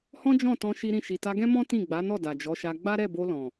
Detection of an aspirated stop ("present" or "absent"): absent